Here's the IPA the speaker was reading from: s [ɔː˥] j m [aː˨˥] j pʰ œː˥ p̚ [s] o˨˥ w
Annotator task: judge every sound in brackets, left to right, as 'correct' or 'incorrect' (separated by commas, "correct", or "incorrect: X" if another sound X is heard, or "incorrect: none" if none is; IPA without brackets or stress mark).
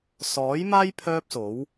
incorrect: ɔː˨˥, incorrect: aː˥, correct